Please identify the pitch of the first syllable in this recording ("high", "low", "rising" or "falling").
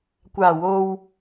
low